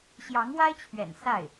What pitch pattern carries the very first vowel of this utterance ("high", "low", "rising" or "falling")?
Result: rising